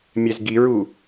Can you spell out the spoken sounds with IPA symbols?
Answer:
mʲ ɛ z ɡ i ɹ u

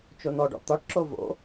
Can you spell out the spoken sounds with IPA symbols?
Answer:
t͡ʃ o n ɔ ɖ ɔ̰ t̪ ɒ ʈ ǁ o v o̰

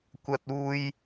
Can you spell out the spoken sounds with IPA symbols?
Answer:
kʷ ɐ˥ t̚ uː˥ j

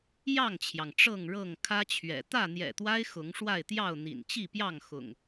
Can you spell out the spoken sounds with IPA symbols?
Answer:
j ɑ˥˨ ŋ t͡ɕʰ j ɑ˩ ŋ ʈ͡ʂ ɤ˥˨ ŋ ɻ ɤ˥˨ ŋ kʰ ä˦ t͡ɕʰ ɥ ɛ̰˨˩ t̪ ä˥˨ n̪ j ɛ̰˨˩ t̪ w a˦ ɪ̯ x ʊ˨˦ ŋ ʂ w a˥˨ ɪ̯ t̪ j ɑ˥˨ ʊ̯ n̪ ḭ˨˩ n t͡ɕ i˥˨ p j ɑ˥˨ ŋ x ʊ̰˨˩ ŋ

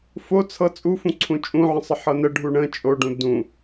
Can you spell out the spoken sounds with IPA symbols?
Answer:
f o t͡sʰ ɤ t͡sʼ u f ũ ǀʰ ũ t͡ʃʼ ũ ʕ ə̃ sˤ ə ħ ɤ n ə ɖʱ u ɳ ə̃ t͡ʃʼ o ɖ ũ d ũ

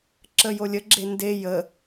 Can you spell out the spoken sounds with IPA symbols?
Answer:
ǁ ə j o lʲ ə ɡ͡ǁ e n d e j ə

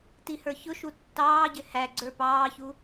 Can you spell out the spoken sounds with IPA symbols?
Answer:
t i h ə˞ ç ʊ ʃ u tː ɑː ɟ ɪ h æ ɡ͡ǀ ə˞ p ɑː ç u

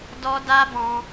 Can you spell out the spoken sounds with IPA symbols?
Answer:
d ɔ˦ d a˦ b ɔ̃˧

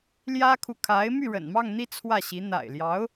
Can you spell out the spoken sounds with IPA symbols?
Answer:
l j ä˥ kʰ u˨ kʰ a˧˥ ɪ̯ m y˥˩ ɻ ə̰˨˩ n m ɑ˥˧ ŋ n̪ i˥˧ t͡sʰ w ä˥˩ ɕ i˧˥ n̪ a̰˨˩ ɪ̯ l j ɑ˧˥ ʊ̯

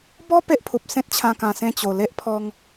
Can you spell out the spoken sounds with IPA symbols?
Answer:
b ɔ˦ p e˦ ʔ pʰ u˨ p̚ s ẽ˦ t̚ t͡ɕʰ ã˧ k ã˧ s ẽ˥˧ t͡ɕ o˨˩ l e˦ ʔ pʰ ɔ˧ ŋ

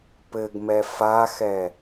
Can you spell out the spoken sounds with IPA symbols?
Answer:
p ɘ ɡ m ɛ f a x ɛ

